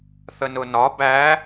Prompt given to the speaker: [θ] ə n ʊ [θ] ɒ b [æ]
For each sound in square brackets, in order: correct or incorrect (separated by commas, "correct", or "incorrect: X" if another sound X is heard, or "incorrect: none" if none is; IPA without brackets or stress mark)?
correct, incorrect: n, correct